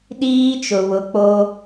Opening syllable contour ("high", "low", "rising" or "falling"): high